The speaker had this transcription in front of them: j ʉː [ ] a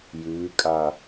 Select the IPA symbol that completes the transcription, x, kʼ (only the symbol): kʼ